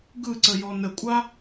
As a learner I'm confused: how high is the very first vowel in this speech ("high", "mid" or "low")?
high